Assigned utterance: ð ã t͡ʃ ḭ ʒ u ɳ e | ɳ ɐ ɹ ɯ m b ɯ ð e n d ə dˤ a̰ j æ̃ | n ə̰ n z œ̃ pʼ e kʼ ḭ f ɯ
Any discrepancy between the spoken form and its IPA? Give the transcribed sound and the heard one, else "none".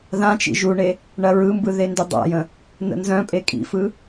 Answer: æ̃ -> ə̃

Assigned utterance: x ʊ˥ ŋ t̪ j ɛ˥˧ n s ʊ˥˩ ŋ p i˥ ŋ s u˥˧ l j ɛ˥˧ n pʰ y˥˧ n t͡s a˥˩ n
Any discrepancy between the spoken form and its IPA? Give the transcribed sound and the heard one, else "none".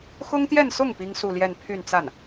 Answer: none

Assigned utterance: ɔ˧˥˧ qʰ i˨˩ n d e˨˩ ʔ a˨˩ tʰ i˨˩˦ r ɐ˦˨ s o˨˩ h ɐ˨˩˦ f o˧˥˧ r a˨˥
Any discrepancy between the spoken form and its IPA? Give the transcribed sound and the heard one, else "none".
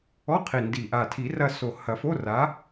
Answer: e˨˩ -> i˨˩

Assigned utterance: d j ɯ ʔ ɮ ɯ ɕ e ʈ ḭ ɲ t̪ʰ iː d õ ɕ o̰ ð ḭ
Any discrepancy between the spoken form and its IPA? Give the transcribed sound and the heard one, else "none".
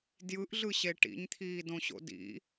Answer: ð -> d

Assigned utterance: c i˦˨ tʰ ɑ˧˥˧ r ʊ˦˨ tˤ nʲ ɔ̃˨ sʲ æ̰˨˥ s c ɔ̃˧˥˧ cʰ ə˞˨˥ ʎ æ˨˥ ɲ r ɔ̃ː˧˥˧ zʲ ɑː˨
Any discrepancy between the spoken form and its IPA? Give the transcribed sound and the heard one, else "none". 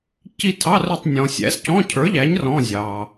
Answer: none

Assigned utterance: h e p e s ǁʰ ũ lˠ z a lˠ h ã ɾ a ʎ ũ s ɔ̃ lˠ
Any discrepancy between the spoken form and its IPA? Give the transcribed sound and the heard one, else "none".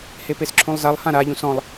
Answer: none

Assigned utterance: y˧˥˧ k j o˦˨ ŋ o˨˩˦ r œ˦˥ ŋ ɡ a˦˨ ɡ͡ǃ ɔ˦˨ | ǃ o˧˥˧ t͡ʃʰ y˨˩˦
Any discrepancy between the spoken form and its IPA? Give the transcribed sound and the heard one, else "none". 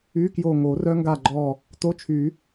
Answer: ǃ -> t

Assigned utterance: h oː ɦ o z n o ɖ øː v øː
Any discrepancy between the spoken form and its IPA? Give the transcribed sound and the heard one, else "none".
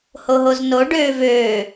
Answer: oː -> o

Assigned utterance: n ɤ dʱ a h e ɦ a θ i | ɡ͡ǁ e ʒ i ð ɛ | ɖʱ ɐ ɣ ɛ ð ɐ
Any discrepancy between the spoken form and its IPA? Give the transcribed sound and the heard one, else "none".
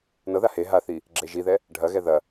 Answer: dʱ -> ð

